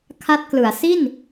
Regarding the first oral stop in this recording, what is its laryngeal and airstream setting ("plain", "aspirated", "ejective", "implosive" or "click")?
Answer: aspirated